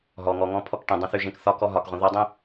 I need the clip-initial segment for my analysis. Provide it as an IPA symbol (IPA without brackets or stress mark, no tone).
ɦ